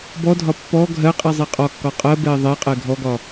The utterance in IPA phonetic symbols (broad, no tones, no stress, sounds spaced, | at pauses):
b ɔ dʱ ɒ pː ɔ ɡʱ ɜ qʼ i zˤ i qʼ ɒ kː ɒ qʼ ɜ b ɛ i̯ ðˤ e qʼ ɛ ɡʱ ɔ ɡ ɒ